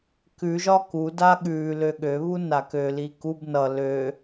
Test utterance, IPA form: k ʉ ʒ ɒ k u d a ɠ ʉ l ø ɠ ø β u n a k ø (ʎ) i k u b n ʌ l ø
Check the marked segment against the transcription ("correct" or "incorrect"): incorrect